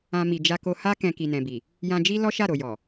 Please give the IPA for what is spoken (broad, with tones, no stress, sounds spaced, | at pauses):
ã˧ m i˨ d͡ʒ a˧ k o˧ h a˦ k ɛ̃˧ k i˨ n ɛ̃˨ b i˨ | j ã˧ d͡ʒ i˦ l ɔ˦ ʃ a˦˨ ɾ o˨ j ɔ˨